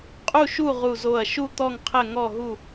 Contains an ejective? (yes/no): yes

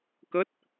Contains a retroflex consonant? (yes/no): no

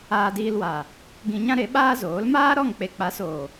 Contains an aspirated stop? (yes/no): no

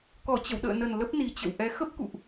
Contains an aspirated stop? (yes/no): no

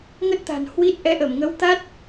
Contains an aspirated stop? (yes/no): no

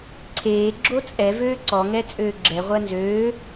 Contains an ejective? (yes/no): yes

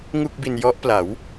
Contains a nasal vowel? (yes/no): no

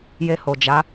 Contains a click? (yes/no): no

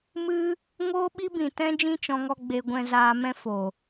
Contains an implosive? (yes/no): yes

